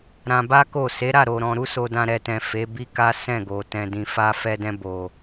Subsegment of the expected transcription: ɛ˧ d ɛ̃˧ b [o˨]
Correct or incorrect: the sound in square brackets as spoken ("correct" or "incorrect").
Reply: correct